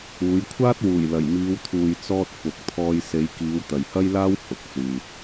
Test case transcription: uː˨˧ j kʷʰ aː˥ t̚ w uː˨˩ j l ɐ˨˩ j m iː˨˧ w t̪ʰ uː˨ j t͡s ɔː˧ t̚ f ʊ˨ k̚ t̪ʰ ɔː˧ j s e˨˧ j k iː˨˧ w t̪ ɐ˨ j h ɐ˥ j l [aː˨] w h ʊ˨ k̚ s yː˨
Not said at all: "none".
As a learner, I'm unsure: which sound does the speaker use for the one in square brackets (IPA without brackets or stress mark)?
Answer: aː˥